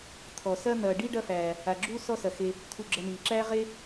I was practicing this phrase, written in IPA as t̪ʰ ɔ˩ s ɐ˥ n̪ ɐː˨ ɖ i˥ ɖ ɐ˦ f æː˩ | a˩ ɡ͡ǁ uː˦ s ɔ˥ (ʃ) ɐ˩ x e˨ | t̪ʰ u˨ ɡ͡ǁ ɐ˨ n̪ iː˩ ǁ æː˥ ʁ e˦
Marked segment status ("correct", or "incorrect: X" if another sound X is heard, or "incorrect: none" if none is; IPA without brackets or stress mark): incorrect: s